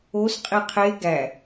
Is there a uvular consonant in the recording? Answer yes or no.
yes